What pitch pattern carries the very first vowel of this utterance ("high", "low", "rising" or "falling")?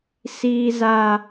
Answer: high